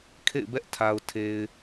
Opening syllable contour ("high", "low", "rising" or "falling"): falling